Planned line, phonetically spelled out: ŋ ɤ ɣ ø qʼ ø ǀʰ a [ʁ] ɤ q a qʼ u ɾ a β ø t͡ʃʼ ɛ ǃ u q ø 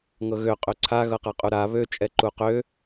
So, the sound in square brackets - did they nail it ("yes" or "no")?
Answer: no